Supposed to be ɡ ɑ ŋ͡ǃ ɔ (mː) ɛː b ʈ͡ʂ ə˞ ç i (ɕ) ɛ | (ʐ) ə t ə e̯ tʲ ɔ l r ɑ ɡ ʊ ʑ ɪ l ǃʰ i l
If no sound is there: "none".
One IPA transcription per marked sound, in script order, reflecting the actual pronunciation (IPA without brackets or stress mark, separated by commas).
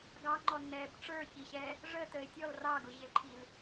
nː, ɕ, ʐ